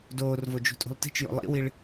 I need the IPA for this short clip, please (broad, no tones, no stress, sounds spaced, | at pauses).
d oː r v o d͡ʒ ṳ tʼ ṳ lˠ t i̤ t͡ʃ j o̰ lˠ ḭ w i ɭ